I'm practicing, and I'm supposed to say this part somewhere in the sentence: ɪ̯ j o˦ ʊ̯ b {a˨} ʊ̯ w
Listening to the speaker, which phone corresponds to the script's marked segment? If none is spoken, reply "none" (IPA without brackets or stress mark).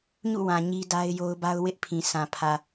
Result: a˦